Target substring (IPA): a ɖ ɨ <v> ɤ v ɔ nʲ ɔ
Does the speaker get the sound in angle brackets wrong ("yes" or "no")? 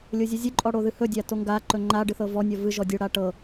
yes